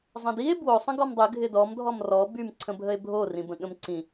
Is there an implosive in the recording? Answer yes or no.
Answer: yes